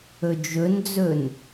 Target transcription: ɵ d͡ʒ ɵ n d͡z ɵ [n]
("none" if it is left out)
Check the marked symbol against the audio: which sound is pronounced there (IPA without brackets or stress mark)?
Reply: n